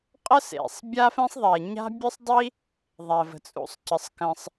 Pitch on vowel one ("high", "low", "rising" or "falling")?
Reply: high